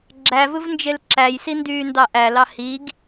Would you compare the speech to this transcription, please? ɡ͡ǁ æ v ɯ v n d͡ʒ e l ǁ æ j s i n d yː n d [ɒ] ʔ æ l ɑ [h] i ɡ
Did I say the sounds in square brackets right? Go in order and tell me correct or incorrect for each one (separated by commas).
incorrect, correct